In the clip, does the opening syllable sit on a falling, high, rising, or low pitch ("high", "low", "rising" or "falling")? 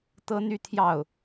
high